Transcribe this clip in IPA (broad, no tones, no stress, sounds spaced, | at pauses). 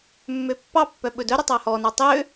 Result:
mː ø pː ɑ pː œ ɓ ɵ d œ ɾ ɵ tˤ ɑ h ɔ n ɑ tˤ ø